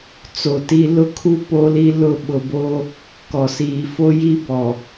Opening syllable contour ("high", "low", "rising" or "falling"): low